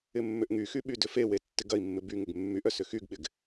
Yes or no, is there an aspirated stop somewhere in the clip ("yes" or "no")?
no